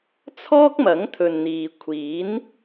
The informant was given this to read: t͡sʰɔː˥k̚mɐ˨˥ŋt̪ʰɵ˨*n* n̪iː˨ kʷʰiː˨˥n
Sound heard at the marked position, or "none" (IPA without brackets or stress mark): n